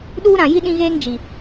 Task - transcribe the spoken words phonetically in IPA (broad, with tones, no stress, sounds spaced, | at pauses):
ɗ uː˦ ɾ ã˨ j i˦ ɗ ĩ˦ ɣ eː˦ ŋ d͡ʒ i˨